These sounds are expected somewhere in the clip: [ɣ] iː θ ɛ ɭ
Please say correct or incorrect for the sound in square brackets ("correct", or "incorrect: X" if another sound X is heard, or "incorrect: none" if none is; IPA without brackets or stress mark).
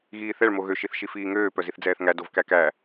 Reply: correct